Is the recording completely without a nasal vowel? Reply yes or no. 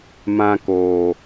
no